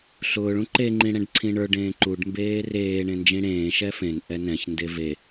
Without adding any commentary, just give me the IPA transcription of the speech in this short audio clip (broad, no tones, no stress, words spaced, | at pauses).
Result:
ɬʊːɭ ũǃeŋ͡ǃĩ ɽɛ̃ɖǀʰĩɳə˞ɖẽː ǃuɖmbeː reː ɳẽnd͡ʒĩɽẽːʃɛ fẽnʔɛ nɛ̃çnde ve